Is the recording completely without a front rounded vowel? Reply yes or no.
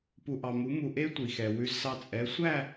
yes